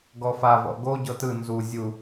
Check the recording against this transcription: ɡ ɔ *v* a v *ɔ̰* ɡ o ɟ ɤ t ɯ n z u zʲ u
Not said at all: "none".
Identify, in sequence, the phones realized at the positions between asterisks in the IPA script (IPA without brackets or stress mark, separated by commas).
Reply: f, ɔ̰